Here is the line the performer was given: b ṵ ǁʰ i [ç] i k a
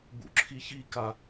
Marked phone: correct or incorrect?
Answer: correct